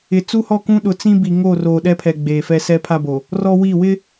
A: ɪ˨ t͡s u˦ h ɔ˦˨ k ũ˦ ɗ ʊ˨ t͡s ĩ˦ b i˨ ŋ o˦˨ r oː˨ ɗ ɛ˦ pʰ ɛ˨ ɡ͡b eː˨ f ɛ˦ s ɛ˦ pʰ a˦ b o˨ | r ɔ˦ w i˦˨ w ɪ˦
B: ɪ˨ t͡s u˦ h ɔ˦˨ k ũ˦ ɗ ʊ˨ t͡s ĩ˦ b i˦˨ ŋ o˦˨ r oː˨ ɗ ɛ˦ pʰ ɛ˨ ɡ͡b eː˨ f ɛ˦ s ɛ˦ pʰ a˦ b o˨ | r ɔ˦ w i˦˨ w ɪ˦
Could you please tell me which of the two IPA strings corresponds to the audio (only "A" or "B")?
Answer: A